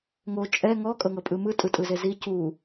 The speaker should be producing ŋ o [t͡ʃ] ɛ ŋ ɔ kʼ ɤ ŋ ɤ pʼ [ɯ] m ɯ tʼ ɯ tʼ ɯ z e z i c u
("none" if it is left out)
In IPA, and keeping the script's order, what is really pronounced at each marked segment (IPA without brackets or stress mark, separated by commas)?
t͡ʃʼ, ɯ